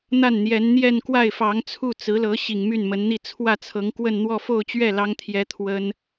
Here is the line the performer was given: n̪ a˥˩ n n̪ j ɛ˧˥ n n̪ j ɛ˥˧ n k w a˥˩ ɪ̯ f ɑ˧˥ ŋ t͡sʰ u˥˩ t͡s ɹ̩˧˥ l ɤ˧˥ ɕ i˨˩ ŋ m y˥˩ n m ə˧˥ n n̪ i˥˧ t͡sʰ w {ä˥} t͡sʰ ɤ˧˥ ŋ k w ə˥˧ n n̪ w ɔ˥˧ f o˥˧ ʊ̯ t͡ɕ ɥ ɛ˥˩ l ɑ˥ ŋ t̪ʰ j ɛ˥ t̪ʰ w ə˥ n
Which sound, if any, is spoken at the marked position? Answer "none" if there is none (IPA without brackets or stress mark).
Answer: ä˥˩